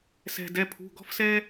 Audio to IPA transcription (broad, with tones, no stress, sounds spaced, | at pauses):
s ɛ̤˩ d ɛ˩˧˩ pʰ ṳ˩˧˩ ɡ ɔ̤˥ f s ɛ˥